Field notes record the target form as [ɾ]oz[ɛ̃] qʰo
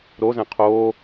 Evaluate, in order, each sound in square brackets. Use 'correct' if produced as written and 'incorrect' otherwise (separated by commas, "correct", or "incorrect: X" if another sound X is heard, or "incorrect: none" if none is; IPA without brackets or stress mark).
correct, correct